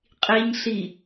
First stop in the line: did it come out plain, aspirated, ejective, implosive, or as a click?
ejective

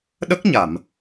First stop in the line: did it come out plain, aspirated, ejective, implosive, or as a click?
implosive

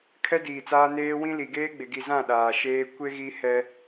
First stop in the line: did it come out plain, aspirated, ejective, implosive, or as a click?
aspirated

